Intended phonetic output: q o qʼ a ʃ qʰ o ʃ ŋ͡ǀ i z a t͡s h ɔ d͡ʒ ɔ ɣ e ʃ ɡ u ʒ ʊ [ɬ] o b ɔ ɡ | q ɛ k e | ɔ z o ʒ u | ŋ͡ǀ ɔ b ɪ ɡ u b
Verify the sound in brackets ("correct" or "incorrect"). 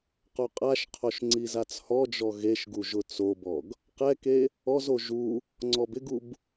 incorrect